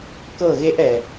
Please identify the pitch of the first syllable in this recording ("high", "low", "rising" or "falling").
falling